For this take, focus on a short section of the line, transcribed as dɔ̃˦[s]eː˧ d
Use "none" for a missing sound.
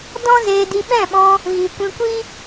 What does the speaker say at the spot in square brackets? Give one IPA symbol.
z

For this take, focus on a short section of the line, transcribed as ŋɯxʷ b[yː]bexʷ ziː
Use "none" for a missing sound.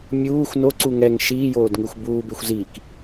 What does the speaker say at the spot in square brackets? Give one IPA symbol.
uː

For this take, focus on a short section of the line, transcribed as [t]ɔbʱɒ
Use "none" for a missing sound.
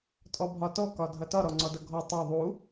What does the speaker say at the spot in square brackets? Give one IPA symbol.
tʼ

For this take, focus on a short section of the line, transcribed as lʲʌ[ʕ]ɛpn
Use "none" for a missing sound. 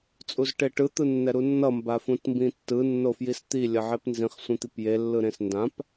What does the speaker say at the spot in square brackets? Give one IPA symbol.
ʕ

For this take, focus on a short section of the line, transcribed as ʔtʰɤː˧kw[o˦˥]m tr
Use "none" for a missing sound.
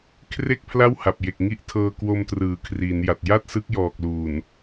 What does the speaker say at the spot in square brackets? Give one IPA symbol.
o˧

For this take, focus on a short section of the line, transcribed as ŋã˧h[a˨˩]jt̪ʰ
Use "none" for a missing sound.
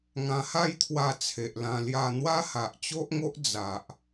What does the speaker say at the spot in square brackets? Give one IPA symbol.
a˥˧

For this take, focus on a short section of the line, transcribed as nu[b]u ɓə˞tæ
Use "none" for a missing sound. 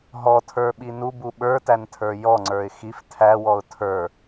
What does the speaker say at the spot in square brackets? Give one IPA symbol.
b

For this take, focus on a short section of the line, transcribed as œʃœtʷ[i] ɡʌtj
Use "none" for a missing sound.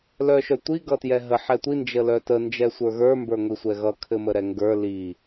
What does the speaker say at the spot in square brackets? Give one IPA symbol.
i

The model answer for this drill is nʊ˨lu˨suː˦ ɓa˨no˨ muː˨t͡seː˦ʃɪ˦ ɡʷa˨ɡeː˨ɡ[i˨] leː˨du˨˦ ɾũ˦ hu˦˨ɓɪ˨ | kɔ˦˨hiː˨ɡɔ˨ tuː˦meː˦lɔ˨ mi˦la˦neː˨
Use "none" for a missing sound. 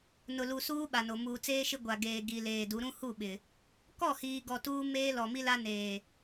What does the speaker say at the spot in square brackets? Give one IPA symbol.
i˨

